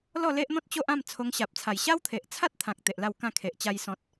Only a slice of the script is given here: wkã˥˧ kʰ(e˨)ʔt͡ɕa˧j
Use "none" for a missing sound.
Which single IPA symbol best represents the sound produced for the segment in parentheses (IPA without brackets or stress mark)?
e˨